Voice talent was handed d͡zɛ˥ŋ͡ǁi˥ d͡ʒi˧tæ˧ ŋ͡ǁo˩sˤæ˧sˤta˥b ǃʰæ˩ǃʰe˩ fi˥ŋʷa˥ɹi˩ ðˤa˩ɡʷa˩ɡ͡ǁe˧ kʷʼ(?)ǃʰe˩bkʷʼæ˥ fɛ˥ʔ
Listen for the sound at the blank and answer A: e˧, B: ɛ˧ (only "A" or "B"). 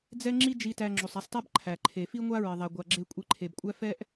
A